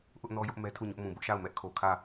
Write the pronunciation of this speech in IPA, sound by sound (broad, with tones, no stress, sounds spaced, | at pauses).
ʔ ʊ˦ ʔ n ɔ˦ j ʊ˦ ʔ m ɛ˦ tʰ u˦˨ ɲ ʊ˦ ʔ m ũ˨ b ʊ˦ ʔ ʃ a˦˨ ʊ̯ m ɛ˦ ʔ kʰ o˨ kʰ ä˦˨